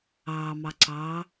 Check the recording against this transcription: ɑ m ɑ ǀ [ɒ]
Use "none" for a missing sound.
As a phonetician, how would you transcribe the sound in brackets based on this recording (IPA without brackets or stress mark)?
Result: ɑ